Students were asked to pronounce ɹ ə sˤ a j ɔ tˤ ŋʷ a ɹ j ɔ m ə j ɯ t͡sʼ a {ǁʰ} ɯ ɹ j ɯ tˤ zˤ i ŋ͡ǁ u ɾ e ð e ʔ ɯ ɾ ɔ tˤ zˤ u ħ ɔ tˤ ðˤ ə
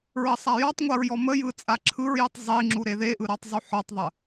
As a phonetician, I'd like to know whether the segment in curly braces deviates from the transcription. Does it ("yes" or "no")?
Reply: no